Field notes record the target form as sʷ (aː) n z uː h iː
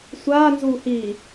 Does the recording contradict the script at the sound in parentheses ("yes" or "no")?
no